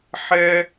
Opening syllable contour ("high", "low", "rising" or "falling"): high